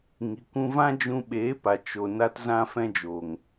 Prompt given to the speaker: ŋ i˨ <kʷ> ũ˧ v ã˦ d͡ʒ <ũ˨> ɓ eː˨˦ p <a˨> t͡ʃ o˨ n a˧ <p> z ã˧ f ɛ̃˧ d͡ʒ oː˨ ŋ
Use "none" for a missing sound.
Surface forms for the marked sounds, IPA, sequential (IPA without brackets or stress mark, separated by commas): kʷ, ũ˧, a˨, t